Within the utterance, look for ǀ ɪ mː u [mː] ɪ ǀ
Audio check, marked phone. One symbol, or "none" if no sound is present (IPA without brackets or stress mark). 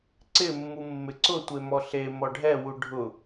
mː